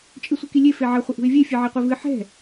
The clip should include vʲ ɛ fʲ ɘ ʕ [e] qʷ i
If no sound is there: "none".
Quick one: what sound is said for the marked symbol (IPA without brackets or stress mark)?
e